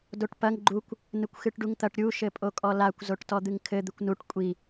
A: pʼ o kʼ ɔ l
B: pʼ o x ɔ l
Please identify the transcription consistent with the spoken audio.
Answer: A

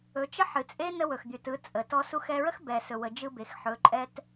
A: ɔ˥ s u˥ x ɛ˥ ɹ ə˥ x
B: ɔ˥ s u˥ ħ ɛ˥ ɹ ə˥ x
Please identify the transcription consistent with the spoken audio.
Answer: A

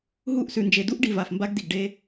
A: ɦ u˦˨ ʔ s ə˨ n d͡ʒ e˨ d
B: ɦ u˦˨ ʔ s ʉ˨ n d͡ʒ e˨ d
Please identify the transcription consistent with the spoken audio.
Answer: B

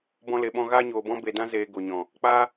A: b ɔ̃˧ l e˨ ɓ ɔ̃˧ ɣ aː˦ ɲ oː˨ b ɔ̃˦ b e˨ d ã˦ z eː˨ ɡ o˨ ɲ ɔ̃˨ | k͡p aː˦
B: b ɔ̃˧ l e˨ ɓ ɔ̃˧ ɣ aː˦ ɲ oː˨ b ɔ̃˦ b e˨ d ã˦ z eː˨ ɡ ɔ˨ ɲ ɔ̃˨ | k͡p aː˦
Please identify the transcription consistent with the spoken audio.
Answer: A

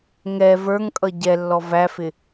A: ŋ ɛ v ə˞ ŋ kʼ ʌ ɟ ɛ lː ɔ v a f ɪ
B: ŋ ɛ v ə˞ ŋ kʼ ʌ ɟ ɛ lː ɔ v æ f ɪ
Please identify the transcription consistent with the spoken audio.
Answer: B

